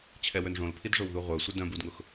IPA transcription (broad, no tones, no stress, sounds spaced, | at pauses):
t͡ɕʰ ɛ w ø n ʐ õ l pʰ i d ʐ o w ð u ʁʷ œ sʷ ɪ d œ̃ b u d ŋ ʊ x